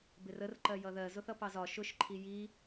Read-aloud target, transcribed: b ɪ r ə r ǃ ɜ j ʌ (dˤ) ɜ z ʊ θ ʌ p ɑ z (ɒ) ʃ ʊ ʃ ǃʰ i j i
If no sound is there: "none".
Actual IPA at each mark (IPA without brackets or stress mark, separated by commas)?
ð, ɒ